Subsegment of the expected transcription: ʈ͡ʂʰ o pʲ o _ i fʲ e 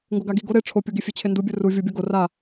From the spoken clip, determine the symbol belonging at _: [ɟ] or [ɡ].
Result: ɡ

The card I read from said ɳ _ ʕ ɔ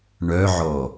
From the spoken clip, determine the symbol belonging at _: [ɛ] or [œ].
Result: œ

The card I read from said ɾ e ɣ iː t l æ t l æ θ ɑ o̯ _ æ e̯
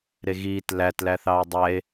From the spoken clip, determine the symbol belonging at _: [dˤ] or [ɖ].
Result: dˤ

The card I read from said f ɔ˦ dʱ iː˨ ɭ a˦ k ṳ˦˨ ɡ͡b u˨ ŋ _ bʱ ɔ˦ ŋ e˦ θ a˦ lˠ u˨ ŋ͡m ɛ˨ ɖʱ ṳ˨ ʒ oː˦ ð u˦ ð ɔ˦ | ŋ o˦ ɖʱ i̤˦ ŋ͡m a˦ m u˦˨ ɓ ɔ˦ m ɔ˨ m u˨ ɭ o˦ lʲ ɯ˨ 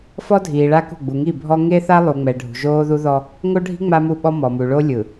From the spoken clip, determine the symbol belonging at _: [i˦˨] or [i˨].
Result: i˦˨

